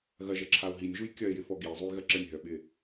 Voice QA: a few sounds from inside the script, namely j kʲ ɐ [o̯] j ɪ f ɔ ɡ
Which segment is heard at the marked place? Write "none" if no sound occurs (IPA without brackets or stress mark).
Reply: e̯